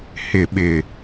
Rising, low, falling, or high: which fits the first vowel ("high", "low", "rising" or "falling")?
low